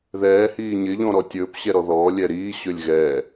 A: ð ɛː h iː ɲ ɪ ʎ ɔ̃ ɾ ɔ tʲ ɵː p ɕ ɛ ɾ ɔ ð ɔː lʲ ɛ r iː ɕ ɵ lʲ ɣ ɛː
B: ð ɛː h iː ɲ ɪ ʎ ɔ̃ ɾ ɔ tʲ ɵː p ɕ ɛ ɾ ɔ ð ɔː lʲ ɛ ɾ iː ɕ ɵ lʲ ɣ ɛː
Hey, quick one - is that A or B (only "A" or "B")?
B